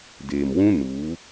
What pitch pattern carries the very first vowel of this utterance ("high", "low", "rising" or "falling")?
low